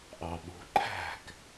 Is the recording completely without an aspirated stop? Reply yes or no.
no